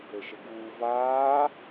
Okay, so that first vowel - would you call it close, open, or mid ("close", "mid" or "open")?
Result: mid